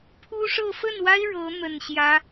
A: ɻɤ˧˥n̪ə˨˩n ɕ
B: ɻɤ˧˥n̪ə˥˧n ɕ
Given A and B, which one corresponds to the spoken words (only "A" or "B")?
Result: A